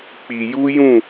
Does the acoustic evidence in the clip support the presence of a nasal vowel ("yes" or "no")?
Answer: yes